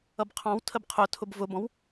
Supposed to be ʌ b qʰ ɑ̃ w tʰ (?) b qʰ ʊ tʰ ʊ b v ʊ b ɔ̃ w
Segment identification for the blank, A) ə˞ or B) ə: B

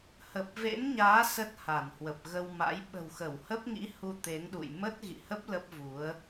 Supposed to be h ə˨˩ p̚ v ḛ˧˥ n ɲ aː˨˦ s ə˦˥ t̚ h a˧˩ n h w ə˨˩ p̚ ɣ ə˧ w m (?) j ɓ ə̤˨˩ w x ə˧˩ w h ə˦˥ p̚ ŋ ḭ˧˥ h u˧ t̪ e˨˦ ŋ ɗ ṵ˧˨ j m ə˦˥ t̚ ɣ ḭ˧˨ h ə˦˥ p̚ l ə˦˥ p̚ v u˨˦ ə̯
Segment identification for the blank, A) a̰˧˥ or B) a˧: A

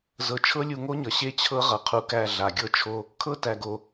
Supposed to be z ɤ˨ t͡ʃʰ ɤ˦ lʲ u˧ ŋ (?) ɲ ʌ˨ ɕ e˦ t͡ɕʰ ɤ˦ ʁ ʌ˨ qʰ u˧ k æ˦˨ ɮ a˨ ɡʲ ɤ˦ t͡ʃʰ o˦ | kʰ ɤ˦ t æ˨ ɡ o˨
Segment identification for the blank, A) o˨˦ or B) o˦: B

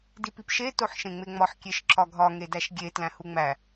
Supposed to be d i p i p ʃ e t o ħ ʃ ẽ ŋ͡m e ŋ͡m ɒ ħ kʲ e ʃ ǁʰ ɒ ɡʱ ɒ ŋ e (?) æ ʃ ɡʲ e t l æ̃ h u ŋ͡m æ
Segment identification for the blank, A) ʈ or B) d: B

